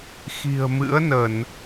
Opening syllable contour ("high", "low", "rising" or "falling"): low